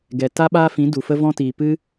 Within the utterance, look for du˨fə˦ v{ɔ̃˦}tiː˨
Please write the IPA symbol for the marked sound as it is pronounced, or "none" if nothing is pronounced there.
ɔ̃˦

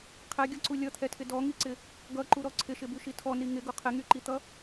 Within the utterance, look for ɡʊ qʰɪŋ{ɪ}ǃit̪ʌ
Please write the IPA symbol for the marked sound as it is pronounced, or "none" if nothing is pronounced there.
y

